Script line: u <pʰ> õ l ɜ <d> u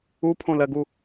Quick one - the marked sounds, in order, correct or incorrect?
correct, incorrect: ɡ

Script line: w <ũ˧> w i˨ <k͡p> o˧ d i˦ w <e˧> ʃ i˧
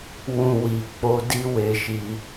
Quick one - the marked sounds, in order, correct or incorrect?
correct, correct, correct

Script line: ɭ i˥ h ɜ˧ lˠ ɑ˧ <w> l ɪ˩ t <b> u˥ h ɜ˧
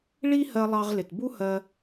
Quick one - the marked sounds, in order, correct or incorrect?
incorrect: ʁ, correct

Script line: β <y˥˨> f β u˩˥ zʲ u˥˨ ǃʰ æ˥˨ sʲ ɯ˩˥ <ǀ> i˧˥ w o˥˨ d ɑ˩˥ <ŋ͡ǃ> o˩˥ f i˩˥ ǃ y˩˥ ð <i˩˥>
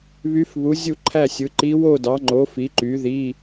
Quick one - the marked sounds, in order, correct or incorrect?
incorrect: y˧˥, incorrect: ǃ, correct, incorrect: i˧˥˧

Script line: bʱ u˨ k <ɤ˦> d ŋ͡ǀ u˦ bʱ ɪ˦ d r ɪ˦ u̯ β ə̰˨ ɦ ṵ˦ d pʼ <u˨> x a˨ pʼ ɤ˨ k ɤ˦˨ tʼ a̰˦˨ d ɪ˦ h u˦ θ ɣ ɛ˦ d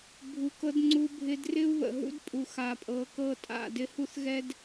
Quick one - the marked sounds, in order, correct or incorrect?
correct, correct

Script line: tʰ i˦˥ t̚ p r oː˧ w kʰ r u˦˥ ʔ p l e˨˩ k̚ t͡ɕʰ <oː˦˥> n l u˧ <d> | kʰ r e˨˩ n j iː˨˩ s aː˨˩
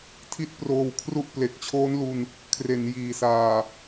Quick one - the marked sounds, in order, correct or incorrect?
correct, incorrect: n

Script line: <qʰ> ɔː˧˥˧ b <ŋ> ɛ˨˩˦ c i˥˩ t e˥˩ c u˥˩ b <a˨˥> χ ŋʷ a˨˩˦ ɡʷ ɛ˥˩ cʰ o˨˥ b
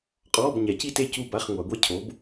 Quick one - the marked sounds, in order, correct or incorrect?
incorrect: qʼ, incorrect: ɲ, incorrect: a˧˥˧

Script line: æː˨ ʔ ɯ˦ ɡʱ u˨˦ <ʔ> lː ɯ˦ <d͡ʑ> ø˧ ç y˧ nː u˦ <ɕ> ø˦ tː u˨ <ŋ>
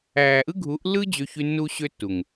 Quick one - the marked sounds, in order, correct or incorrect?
correct, correct, correct, correct

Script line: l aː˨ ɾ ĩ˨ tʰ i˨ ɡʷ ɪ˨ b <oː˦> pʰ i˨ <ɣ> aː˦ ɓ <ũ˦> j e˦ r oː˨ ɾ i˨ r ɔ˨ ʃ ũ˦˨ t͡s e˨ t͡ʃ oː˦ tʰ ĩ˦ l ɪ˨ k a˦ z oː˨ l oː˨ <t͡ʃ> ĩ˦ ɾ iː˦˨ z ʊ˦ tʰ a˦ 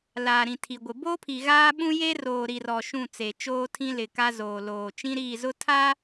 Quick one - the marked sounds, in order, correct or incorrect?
correct, correct, correct, correct

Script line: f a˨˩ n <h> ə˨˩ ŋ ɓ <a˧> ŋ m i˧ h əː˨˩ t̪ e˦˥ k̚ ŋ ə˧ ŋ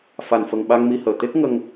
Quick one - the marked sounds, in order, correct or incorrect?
incorrect: f, correct

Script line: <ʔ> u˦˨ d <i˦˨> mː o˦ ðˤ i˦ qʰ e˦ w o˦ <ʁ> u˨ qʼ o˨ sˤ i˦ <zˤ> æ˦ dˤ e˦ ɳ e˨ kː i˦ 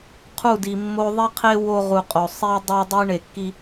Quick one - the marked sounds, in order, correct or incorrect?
incorrect: qʰ, incorrect: i˨, correct, incorrect: dˤ

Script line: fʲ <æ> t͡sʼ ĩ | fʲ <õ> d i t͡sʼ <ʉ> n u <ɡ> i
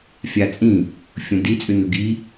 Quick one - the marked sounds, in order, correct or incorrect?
incorrect: a, correct, correct, correct

